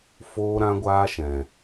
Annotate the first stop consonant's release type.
plain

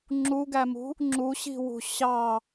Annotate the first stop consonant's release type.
click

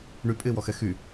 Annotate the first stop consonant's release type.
ejective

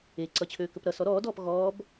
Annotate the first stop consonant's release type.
click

